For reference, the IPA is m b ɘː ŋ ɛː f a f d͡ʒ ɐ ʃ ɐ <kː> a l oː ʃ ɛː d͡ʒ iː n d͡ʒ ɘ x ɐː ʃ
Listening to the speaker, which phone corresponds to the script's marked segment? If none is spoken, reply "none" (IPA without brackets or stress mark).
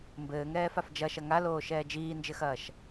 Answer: ŋ